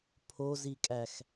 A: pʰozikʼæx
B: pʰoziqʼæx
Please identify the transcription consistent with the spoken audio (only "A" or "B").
A